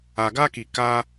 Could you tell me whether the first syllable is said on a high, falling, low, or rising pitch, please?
low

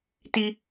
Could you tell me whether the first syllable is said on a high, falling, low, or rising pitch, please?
high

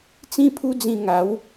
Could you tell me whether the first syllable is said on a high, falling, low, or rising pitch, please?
high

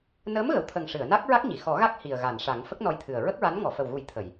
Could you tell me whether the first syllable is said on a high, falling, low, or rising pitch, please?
rising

